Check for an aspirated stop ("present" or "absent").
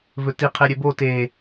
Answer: present